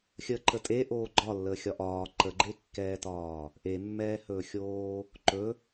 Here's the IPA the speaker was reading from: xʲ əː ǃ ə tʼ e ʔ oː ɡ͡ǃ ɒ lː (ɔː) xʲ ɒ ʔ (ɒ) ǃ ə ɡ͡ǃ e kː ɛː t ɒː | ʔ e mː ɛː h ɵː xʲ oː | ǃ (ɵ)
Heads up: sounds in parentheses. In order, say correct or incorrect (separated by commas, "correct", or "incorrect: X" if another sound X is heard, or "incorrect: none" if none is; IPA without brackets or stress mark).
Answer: incorrect: əː, incorrect: ɒː, correct